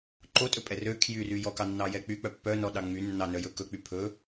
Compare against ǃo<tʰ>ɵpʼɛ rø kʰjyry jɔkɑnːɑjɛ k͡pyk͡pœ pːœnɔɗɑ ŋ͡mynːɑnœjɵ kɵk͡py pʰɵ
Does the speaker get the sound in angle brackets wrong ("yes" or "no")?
yes